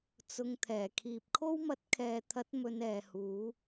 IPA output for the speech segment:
t͡sʊ˧ŋ t̪ʰɛː˨˩kʰiː˨p̚ kʰo˥wmɐ˧t̚kʰɛː˨t̪ʰɐ˨˥t̚ mɵ˧nɛː˨huː˨˥

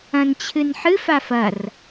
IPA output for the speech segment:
ɐ̃nt͡ɕʰɨnħɨ fafɐr

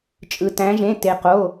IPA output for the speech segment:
t͡ʃʼɯ˧tæ̃˧˥ʒẽ˧˥˧ te˧˥qo˧˥˧

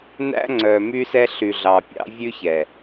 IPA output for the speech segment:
næ̰˦ŋ͡ǀœ˨ my˦sɛ˦ ɬy˨ɮɑ˨pʲɑ̰˦ vʲʉ˦çɛ˨

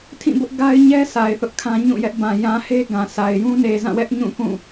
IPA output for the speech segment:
tʰĩ˦˨bʊ˦ʔɡa˦ɪ̯ ɲɛ˦ sʰa˨ɪ̯ θʊ˦ʔkʰã˦ ɲũ˦˨ jɛ˦ʔbã˨ jã˨he˦ ɡã˨sʰa˨ɪ̯ jũ˦ ne˨zã˦˨wɛ˦ʔ ɲũ˦˨kũ˦˨

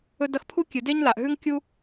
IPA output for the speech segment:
ɵ˦dɐ˦x pʰu˥kʲɨ˩de˥ɲ la˩ʔɦʉ˥ŋ kʲu˥

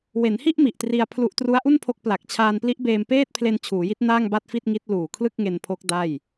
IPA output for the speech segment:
we˩˦nhi˥˩ʔ mi˨˩ʔtri˧a̯pʰlu˦˥ʔ tru˦˥a̯ʔu˥˩npʰo˦˥k̚pla˨˩k̚ t͡ɕʰaː˧npli˦˥ʔbeː˧mpeː˥˩t̚ pʰle˧n t͡ɕʰuː˩˦ji˦˥t̚ naː˥˩ŋba˥˩t̚fi˥˩t̚ŋi˦˥t̚ luː˨˩kʰlɯ˥˩k̚ŋe˧npʰo˦˥k̚ da˥˩j

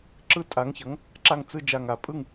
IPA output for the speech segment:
ǁɯ˥˧tʼa˧˥ŋçʌ˧˥ŋ | ǁa˥˧ŋt͡sɯ˥˧ d͡ʒa˥˧ŋa˧˥ pʼɯ˥˧ŋ

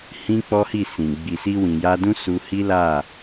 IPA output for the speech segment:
hĩ˦k͡pɔ˦hi˦˨sĩ˨ ɡ͡bi˨si˧ wĩ˨ja˧dũ˦ su˧hi˦la˦˨

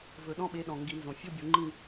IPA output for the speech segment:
vɵ˨˩˦ɗɔ̃˧˥˧ɓe˨˦ ɗɔ̃˩ ŋɡi˨˩˦nzõ˩ fʲo˧˥˧bʲo˨˩˦ŋ͡ǃĩ˦˨

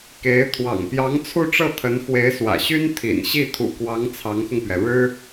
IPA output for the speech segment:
ke˧˥ɪ̯ t̪ʰwɑ̰˨˩ŋpjɑ˧˥ŋ t͡sʰu˥˧ʈ͡ʂɤ˥˩t̪ʰə˧˥n xwe˧˥ɪ̯swä̰˨˩ɕy˥n t̪ʰḭ˨˩nɕi˥˩ t̪ʰṵ˨˩kwɑ˧˥ŋ t͡sʰɑ˧˥ŋxʊ˧ŋpɥɛ˩ ɻɻ̩˥

